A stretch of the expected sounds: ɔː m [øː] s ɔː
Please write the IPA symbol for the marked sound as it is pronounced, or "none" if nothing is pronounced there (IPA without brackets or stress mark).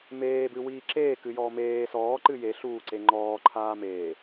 eː